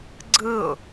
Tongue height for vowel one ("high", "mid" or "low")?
high